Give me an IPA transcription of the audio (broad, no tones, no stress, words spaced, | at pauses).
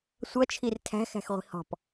sʷʌt͡ʃʰir tʰæ̤xæ̤xʁʷi̤ hɔ̤p